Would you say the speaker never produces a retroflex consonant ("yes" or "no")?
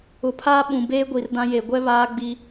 yes